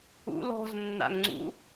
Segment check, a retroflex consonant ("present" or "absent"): absent